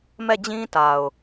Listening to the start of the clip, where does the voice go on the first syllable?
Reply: falling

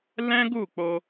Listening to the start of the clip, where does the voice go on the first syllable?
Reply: high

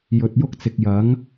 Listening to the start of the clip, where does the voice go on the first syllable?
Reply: low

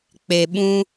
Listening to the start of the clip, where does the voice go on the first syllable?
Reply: low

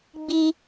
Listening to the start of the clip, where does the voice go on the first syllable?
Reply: high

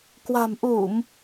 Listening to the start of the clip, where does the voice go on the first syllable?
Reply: low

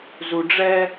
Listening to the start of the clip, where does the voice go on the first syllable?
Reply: low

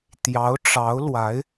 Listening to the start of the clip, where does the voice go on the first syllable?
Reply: rising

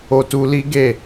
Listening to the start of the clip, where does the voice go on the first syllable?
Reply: high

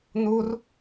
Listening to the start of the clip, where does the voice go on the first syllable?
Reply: high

